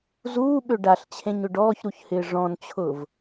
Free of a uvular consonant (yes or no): yes